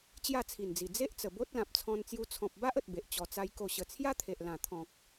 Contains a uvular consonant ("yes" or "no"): no